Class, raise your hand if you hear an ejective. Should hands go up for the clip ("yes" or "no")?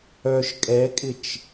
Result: yes